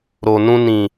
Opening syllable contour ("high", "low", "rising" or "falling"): low